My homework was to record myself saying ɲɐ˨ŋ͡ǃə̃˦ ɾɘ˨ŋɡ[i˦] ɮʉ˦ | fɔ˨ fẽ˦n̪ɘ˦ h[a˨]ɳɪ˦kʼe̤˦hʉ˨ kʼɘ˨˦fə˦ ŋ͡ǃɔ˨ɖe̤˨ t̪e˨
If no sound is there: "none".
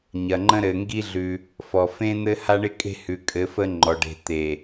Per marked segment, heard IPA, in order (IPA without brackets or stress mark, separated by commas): i˦, a˦